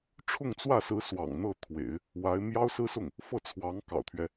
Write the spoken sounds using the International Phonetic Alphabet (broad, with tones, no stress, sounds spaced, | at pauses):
ʈ͡ʂʰ ʊ˥˧ ŋ t͡s w ä˥˩ s ɹ̩˧˥ s w ɑ̰˨˩ ŋ n̪ ɤ˥˩ t̪ʰ w ḛ˨˩˦ ɪ̯ | w a˧˥ ɪ̯ m j ɑ˥ ʊ̯ s ɹ̩˥ s ʊ˥˩ ŋ | f ɤ˥˩ t͡sʰ w ɑ˧˥ ŋ k ɑ̰˨˩ ʊ̯ t̪ʰ ɥ ɛ˦